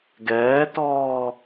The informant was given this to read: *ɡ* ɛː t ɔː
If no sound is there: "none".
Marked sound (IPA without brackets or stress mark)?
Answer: ɡ